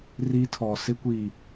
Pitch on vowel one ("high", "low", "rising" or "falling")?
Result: high